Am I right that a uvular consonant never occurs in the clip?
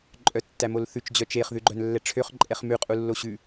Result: no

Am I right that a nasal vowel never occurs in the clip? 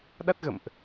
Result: yes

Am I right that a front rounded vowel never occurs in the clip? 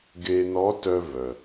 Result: no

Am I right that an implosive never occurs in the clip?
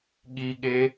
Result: no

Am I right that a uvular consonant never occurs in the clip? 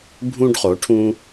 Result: no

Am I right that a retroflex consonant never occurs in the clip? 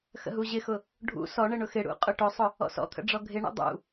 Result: no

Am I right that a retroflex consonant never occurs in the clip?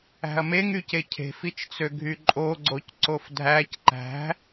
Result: yes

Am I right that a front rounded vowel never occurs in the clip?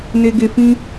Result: yes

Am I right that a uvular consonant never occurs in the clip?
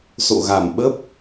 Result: yes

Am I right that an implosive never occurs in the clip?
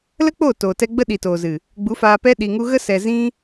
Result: no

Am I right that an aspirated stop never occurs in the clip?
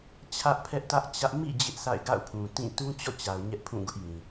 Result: no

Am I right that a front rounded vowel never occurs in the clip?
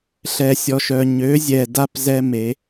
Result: no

